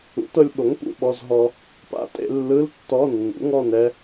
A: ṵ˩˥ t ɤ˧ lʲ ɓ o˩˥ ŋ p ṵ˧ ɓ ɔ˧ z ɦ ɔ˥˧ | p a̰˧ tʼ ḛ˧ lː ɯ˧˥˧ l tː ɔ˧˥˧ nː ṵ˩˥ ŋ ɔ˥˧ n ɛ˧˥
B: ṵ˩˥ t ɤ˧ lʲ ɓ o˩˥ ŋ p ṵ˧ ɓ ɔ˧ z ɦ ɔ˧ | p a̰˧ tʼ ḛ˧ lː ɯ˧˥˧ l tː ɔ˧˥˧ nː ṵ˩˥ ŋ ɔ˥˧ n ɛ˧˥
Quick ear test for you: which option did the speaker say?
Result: B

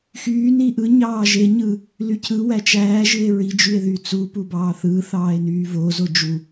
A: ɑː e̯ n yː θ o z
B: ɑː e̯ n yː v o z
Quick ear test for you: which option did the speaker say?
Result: B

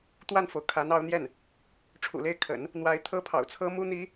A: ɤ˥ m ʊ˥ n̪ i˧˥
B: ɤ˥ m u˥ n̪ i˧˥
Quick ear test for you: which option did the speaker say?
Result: B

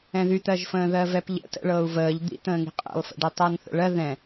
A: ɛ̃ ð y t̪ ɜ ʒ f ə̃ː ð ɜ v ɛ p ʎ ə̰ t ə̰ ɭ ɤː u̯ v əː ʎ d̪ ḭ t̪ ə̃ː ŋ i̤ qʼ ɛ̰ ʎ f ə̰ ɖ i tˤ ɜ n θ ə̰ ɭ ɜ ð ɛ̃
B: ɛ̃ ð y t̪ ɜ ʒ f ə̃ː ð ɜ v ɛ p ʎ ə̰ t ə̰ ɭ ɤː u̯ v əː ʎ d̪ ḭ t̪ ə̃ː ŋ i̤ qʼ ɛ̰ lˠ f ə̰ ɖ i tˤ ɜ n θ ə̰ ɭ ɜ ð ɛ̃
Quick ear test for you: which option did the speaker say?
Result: B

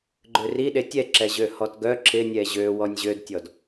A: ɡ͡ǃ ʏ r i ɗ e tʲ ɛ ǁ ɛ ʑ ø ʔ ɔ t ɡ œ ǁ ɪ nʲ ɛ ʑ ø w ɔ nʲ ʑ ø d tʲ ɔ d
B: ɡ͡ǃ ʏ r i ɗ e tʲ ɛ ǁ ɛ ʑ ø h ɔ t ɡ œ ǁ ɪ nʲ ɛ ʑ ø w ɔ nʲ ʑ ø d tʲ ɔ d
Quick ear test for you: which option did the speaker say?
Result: B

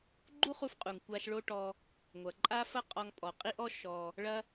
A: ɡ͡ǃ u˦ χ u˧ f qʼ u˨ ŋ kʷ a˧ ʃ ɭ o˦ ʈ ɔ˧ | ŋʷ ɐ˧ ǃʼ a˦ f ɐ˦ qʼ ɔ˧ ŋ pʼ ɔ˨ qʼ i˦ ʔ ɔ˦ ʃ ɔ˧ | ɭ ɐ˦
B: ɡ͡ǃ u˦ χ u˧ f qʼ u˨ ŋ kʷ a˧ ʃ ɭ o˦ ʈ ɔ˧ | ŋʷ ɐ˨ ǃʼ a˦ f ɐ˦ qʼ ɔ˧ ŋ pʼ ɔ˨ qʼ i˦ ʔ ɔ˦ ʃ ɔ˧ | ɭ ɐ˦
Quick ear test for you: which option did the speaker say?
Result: B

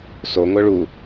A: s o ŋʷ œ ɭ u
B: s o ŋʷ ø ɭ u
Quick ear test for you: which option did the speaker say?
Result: A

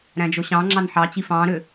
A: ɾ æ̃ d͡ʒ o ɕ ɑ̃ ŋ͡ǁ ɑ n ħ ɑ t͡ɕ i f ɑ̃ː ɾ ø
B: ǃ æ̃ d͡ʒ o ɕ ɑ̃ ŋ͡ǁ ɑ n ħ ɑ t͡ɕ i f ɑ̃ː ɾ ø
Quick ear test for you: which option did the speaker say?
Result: A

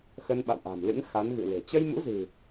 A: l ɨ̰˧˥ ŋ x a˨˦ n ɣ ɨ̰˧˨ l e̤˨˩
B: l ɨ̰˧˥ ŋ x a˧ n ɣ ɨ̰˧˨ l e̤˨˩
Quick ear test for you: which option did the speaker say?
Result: A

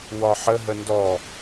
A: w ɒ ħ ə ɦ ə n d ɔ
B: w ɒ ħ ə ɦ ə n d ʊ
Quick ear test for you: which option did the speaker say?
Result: A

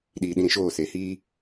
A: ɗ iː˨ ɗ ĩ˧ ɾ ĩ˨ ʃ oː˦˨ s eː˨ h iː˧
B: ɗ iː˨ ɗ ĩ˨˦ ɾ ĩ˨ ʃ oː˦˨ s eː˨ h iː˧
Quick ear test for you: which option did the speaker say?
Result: A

